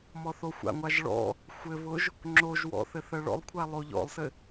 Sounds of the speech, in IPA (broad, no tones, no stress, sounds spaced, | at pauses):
m ɔ θ o xʷ a̰ ŋʷ a ʒ ɭ ɔ̰ | xʷ ɘ β ʊ ʒ | ŋ͡ǁ o ʒ w ɔ̰ θ ɘ θ ɜ ɭ ɔ̰ lˠ kʷʰ a lˠ o ʎ ɔ̰ lˠ s ɘ